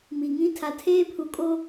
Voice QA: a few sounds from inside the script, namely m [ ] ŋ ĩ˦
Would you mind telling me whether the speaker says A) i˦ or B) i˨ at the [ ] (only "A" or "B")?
B